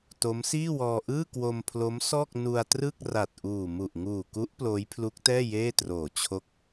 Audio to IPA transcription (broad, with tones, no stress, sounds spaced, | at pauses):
t o˦˥ m s iː˥˩ w ɔː˧ ʔ ɯː˥˩ k w o˧ m pʰ l o˦˥ m s ɔː˥˩ k̚ n u˧ a̯ t r ɯ˥˩ k̚ r a˨˩ t̚ ʔ uː˨˩ m u˨˩ ʔ ŋ uː˨˩ k u˦˥ ʔ p l oː˦˥ j pʰ l u˦˥ k̚ t ɛː˥˩ j eː˥˩ t r oː˨˩ t͡ɕʰ o˦˥ k̚